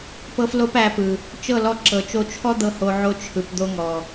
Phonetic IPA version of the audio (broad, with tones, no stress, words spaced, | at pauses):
pɤ˧flo˧p æ˧pɯ˨ | t͡ʃɤ˦˨lɔ˧ǁɤ˨ t͡ʃo˧t͡ʃʰɔ˦d̪ɤ˧ ho˧ ʕo˧t͡ʃʰɯ˨p d̪o˧ŋɔ˨